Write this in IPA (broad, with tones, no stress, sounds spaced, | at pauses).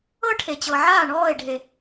ɤ˦ ʈʰ e˨ t͡ɕ ɤ˨ ʕ aː˦˨ ɳ ɔː˦˨ e̯ ɖʱ e˨